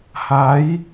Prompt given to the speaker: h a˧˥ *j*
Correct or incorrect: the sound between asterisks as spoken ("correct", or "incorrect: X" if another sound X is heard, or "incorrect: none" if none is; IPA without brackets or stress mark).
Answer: correct